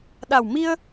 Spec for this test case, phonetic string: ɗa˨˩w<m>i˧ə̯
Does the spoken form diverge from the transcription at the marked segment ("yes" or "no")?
no